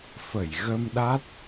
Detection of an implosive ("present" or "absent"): present